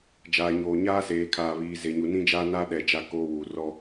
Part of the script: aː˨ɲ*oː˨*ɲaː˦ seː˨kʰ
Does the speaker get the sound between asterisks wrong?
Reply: no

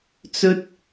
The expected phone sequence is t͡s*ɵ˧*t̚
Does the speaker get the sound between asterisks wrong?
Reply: yes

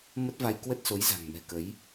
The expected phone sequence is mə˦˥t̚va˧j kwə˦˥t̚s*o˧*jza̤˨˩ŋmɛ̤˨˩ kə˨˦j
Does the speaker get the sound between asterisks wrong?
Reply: yes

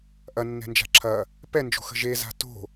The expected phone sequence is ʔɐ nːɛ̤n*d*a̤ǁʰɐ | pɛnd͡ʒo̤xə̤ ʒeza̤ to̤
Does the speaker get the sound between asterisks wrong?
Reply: yes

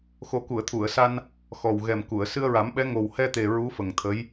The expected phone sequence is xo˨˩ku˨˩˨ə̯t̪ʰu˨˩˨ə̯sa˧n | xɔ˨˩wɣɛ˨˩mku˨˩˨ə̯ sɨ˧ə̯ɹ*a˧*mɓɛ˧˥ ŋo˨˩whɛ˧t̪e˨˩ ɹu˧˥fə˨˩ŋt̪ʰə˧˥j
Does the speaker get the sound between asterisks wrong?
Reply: yes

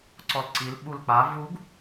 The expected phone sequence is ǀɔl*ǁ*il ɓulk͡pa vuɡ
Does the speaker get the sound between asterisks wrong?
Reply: yes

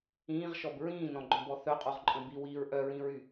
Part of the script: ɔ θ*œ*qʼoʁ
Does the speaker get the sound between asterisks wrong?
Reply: no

